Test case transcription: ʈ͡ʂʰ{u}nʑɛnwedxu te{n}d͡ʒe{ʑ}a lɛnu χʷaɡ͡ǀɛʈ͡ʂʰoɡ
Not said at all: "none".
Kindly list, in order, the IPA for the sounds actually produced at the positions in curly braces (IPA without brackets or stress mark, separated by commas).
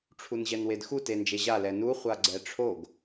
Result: u, n, ʑ